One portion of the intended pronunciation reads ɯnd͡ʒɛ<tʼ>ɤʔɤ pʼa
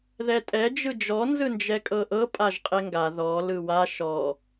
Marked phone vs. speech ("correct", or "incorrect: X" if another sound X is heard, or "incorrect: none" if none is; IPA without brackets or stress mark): incorrect: kʼ